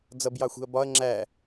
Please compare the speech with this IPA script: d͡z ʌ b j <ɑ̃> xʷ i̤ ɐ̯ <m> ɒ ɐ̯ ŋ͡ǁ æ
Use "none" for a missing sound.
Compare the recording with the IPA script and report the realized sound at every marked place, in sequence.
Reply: ɑ, b

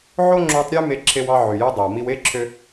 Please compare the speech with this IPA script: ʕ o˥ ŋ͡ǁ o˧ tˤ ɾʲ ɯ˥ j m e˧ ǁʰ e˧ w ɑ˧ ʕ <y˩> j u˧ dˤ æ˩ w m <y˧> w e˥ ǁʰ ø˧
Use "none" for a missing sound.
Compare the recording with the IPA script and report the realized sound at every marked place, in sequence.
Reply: y˩, i˧

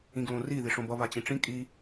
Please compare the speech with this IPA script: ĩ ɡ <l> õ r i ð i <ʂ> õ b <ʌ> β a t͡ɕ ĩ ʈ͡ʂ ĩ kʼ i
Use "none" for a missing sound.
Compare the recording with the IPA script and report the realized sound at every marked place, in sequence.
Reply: l, ʂ, ʌ

